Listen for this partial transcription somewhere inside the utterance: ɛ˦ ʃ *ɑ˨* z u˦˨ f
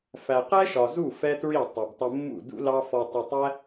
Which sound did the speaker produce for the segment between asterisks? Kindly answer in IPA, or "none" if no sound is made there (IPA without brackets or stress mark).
ɒ˨